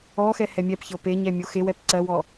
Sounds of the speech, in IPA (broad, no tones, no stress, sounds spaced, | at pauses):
ɔ x ɛ h ɛ mʲ ɛ p ç ɤ p e ɲ ɛ mʲ o x e w ɛ p ǀ ɜ w ɔ